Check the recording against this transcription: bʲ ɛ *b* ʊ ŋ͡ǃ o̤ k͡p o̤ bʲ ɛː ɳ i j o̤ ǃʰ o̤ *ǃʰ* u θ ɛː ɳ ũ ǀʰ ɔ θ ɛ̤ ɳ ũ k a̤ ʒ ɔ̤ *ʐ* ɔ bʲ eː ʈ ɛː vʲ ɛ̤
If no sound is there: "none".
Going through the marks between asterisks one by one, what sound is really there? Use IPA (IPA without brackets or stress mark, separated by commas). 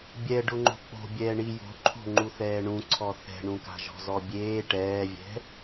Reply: ɖ, ŋ͡ǃ, z